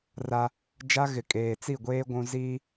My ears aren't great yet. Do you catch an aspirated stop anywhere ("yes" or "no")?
no